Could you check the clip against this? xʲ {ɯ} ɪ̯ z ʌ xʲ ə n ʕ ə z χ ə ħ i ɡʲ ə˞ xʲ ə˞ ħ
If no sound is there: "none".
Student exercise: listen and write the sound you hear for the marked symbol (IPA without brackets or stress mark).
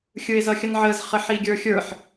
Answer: ɯ